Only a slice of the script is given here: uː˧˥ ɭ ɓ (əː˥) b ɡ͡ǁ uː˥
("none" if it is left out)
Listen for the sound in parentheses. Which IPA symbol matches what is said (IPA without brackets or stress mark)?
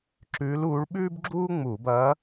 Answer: ʉː˥